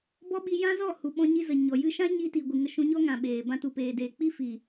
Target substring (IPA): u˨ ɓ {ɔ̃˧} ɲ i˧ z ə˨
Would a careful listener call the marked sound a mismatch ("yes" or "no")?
no